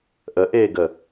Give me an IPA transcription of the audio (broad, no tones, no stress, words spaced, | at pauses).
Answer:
ʔəʔeːɡə